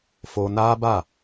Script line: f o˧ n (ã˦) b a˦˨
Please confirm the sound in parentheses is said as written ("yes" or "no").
no